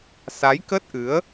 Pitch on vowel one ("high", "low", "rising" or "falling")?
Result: rising